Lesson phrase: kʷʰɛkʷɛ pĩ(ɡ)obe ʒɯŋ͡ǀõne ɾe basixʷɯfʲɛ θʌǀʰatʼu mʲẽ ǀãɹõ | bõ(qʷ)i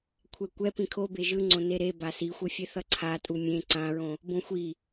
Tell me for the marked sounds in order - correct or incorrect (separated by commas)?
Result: incorrect, incorrect